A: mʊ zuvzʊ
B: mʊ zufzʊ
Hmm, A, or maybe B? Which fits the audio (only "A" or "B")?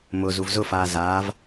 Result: A